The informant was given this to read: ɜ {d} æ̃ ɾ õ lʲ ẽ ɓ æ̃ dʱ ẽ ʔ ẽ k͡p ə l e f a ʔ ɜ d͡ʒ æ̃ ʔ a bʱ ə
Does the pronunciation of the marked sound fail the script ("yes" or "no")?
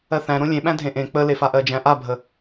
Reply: yes